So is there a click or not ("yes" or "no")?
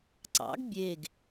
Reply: yes